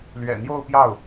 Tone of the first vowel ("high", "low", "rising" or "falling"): low